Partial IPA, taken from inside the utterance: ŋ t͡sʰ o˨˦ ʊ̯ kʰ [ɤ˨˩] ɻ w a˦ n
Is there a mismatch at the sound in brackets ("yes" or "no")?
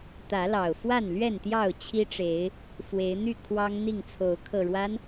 no